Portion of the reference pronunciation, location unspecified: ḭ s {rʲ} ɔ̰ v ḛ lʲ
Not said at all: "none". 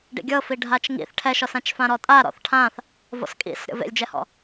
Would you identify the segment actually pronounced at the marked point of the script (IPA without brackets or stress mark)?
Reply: ɾʲ